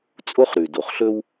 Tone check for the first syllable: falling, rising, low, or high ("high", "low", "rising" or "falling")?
high